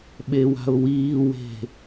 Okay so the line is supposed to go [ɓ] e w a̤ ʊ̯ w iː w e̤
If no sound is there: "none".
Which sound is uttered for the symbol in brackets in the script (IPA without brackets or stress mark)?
ɓ